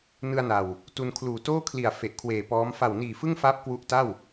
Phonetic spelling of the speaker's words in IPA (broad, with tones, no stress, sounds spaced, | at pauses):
n ɯ˧ a̯ n a˨˩ w | t u˧ n kʰ l uː˨˩ t oː˥˩ kʰ l i˨˩ a̯ f e˨˩ ʔ kʰ w eː˨˩ p ɔː˦˥ m f a˨˩ w n iː˨˩ f ɯ˥˩ ŋ f aː˦˥ p̚ k w u˦˥ ʔ t a˥˩ w